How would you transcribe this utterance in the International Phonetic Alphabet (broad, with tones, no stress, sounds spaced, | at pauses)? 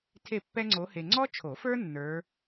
tʰ e˥˨ pː ɛ˥ ŋ͡ǀ o˧˥ h e˧ ŋ͡ǀ ɔ˥ t͡ʃʰ o˨˩˦ f ə˞˥ nː ə˞˧˥